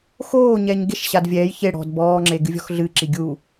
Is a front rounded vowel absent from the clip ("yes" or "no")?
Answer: yes